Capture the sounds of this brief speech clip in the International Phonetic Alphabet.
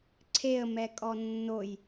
ǀʰ e ə̯ m ɛ kʼ ɔ nː o j

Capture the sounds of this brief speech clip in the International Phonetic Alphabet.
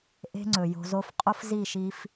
ʔ e̤˦ ŋ͡ǀ ɵ˨ j o̤˧ z o˦ f qʼ o˦ f z i˦˨ ʃ i˧ f

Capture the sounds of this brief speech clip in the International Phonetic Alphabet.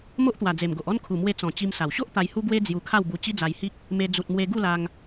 m o˦ ʔ t̪ w a˨˩ d͡z e˨˩ m ɡ o˨ ʔ ɔ˥˧ n kʰ u˨˩ m w e˧ t͡s ɔ̃˨˩ t͡ɕ i˧ m s a˨˩ w ɕ o˦ ʔ t̪ a˧ j h u˦ ɡ w e˦ d͡z j u˧ kʰ a˥˧ w b u˧ t͡ɕ i˦ d͡z a˧ j h i˦ k̚ | m e˧ d͡z u˨ t̚ m w e˧ ɡ u˥˧ l a˧ ŋ

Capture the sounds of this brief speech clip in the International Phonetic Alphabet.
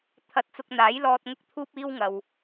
t̪ʰ ɐ˧ t̚ t͡s ʊ˧ k̚ n̪ aː˨˥ j l ɔː˧ t̚ ŋ ʊ˥ k̚ t̪ʰ uː˥ p̚ iː˥ w ŋ ɐ˨ w

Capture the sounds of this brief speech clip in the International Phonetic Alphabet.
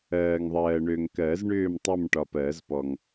ɜː˨ ŋ ðˤ ɜː˨ ɳ ø˨ ŋ k ɜ˨˩˦ z ɳ ʏː˥˧ m tˤ ə˥˧ m ʈ ɒ˨ p ɜ˨˩˦ z p ɔ˨ ŋ

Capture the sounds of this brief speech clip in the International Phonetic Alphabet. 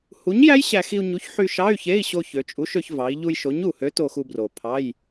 h u˨˥ ɲ j æ˦˥ j ɕ æ˧ x i˧ u̯ ɲ u˨˥ ç ħ y˧ ʃ ɑ˧˥˧ y̯ ç e˧˥˧ i̯ ɕ o˧ ç ø˩˧ t͡ʃʼ u˨˥ ʃ ø˧ ç v ɑ˩˧ i̯ ʎ u˧ j ʃ o˨˥ ɲ u˨˩ h ø˨˥ t o˧ x u˧ b r o˨˩ pʰ ɑ˧˥˧ j

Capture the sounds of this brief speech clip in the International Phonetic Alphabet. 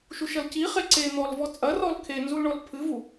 ʃ u ʃ ɐ l c i χ e ǀ e n̪ ɔ l v ɔ t͡sʼ ɐ r ɔ l kʰ e n z u l ɳ ɔ l pʰ ɨ v u

